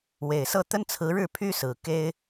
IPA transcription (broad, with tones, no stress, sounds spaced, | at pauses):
w e˨˩ ɪ̯ s ɤ˥˩ t̪ ə˥ n t͡sʰ ɹ̩˧˥ ɻ ɻ̩˥˩ pʰ y˥ s ɹ̩˨˩ k e˥ ɪ̯